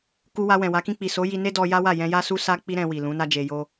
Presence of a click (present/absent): absent